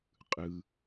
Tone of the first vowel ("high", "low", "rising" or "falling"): low